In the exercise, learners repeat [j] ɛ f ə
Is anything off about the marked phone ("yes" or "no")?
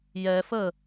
no